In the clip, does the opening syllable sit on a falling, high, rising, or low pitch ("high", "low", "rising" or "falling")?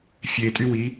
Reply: low